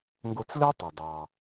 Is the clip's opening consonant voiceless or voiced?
voiced